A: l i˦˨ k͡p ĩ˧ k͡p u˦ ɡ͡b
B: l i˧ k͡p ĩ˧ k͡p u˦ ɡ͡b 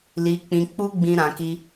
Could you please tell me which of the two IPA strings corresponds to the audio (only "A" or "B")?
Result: B